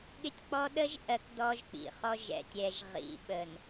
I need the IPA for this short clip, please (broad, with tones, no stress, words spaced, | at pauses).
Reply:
ɠɪ˦tʲk͡pɔ˦ ɗə˦ʒʔɜ˨k dɔ˦ʒk͡pḭ˨χɔ˦ ʒɛ̰˨tʲ ɛ˨ʒ ʁḭ˨ ɓə˨n